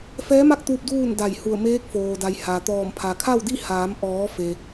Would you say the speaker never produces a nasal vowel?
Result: yes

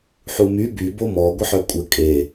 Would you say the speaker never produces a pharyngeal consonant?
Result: no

